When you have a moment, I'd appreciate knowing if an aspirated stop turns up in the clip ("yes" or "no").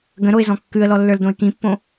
no